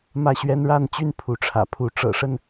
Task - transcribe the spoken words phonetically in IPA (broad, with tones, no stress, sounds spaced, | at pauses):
m ä˥˨ ɕ ɥ ɛ˦ n ɻ a˥˨ n t͡ɕ y˥˨ n pʰ u˨˦ ʈ͡ʂʰ ä̰˨˩ pʰ u˨˦ ʈ͡ʂ ɤ̰˨˩ ʂ ə˥˨ n